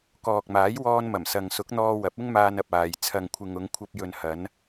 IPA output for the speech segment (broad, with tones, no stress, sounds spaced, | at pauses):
k ɔː˨ k̚ m aː˨˥ j w ɔː˧ n m ɐ˨˩ m s ɐ˨ ŋ s ʊ˨˥ k̚ n̪ ɔː˧ w ɐ˨˥ p̚ ɪ˥ ŋ m aː˧ n ɐ˨ p̚ aː˨ j t͡sʰ ɐ˨ ŋ kʷʰ ɪ˨ ŋ ʊ˨˧ ŋ kʷʰ ɐ˧ p̚ j ɵ˨ n h ɐ˨˧ n